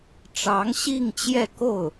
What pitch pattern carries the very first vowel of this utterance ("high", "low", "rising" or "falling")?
rising